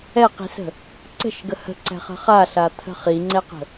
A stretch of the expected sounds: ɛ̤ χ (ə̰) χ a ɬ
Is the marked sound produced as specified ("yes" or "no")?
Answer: no